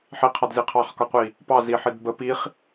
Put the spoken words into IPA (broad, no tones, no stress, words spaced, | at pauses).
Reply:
ħiqʰɑdzi qʰɑχkɒqʷi | pɑziħid bə piχ